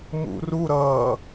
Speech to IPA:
mṵruɾʌː

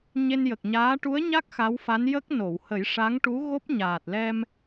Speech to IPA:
ɲe˧njə˨˩k̚ɲaː˧˥ ʈu˧˥ə̯ɲa˦˥k̚ xa˧˥wfa˧˥n jə˦˥k̚no˨˩˨w hə˨˩˦jʂa˧˥ŋʈu˧˥ ɣo˦˥p̚ɲaː˨˩t̚ lɛ˧m

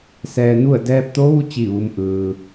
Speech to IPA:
sɛː˧nu˥˨ə̯ dɛː˧p̚t̪o˧˥ʋu˧˥ t͡ɕi˥˨ʋu˧˥m ʔɯː˧

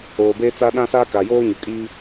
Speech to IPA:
oː˨beː˦t͡sa˦ ɗã˦saː˦ka˨joː˦ ɲʊ˨kʼiː˦

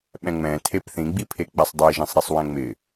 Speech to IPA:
ɓɛ̃ŋ͡mɛ̃ tʰepθĩ ɡ͡bipʰek͡pɛsˤdˤe ʒɛ̃sˤɾesˤwɛ̃ŋ͡mɪ

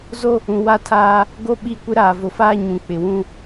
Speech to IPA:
zo˦ | ũ˨wa˦tʰaː˦ | ɡo˦ɓi˦˨ kʷɪ˦ɾaː˨vʊ˨faː˦ ɲũ˨ k͡pɪ˨wũ˦

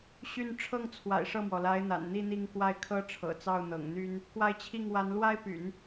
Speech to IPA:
ɕy˥˧n ʈ͡ʂʰɤ˥˩ŋt͡sʰwa̰˨˩ɪ̯ ʂɤ˥˩mwɔ˩la˧˥ɪ̯n̪a̰˨˩n n̪i˥˧n̪i˥˧ŋ kwa˥˩ɪ̯kʰɤ˥ʈ͡ʂʰɤ̰˨˩t͡sɑ˥˩ʊ̯ n̪ɤ̰˨˩ŋn̪y˥n | kwa˥˧ɪ̯t͡ɕʰi˥˩ŋ wa˧˥nlwa˥ɪ̯py̰˨˩˦n

